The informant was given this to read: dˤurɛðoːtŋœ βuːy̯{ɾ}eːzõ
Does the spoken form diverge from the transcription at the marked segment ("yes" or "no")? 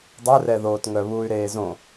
no